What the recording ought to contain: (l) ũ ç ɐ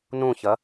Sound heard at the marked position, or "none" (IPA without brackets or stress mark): n